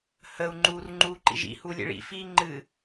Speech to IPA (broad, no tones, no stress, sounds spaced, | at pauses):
h ə u̯ ŋ͡ǃ uː r ŋ͡ǃ uː ǃ ḭ ʒ ḭ h u lʲ ḛ ɭ ḭ f iː ŋ͡ǃ ɨ